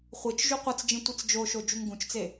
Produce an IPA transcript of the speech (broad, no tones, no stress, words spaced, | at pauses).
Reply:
χʷɨt͡ʃ ʒuqʷɐt͡sd͡ʒĩ tʷɨt͡sd͡ʒoʃo d͡ʒuŋɡũt͡ʃt͡se